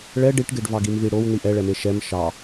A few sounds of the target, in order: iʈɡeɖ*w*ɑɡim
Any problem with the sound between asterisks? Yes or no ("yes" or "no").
yes